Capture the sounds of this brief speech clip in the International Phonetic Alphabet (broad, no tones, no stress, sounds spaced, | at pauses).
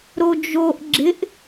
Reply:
ɾ o d͡ʒ o ʔ ɡ͡ǁ ɪ ʔ